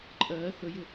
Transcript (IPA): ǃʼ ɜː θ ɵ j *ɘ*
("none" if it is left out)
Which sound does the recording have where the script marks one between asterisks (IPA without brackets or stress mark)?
ɘ